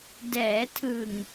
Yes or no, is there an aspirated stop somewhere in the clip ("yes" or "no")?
yes